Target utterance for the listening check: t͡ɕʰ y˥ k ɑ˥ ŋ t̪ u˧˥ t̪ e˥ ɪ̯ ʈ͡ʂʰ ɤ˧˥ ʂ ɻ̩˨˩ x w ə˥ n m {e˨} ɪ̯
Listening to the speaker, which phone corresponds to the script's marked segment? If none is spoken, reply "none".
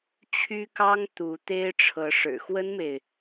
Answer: e˨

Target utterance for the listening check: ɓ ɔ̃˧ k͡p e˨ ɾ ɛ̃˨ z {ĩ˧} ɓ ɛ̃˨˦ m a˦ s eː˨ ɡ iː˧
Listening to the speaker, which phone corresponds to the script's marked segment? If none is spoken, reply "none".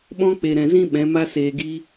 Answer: ĩ˧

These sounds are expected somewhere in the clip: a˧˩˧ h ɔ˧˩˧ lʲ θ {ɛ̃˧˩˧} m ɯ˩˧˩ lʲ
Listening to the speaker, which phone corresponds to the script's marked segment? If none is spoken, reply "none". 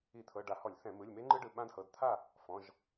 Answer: ɛ̃˧˩˧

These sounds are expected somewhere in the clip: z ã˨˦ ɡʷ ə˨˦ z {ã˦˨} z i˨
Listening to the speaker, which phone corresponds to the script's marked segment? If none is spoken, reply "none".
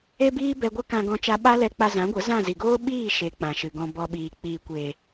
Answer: ã˦˨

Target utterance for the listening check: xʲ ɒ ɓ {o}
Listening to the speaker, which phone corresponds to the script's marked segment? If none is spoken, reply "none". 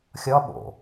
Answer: o̰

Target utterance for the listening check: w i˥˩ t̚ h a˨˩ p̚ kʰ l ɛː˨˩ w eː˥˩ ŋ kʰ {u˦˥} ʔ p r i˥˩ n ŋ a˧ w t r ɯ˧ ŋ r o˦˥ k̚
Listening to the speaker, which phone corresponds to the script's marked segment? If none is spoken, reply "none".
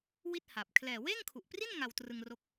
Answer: u˨˩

